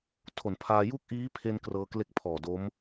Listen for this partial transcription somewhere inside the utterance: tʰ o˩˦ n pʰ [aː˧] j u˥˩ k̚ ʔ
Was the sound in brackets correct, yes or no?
yes